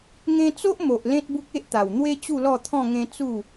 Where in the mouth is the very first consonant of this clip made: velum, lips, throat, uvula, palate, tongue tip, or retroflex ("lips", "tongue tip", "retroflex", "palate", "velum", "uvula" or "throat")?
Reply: velum